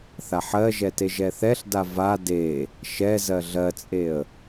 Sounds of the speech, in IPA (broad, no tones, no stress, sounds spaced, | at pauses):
θ a ħ ɜ ʒ ɛ t e ʒ ɛ θ ɛ ɬ d a v a d e | ʃ ɛ z ɜ ɮ ɜ t͡sʼ e ə̯